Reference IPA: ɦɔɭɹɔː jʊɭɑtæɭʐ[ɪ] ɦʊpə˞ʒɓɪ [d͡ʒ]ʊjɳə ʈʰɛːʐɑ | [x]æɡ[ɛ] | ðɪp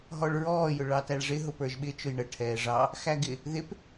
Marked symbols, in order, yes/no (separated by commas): yes, no, yes, no